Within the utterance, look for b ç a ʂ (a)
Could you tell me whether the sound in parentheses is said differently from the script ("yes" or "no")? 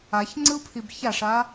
no